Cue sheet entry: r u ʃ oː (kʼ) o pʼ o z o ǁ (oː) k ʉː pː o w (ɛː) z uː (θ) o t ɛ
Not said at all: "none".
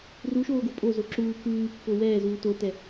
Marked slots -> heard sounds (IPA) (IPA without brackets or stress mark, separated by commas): ɡ, uː, ɛː, t